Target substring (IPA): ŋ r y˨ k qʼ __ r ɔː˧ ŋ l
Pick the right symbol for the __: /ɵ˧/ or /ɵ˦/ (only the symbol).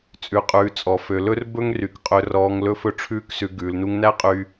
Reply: ɵ˧